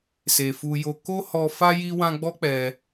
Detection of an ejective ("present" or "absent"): absent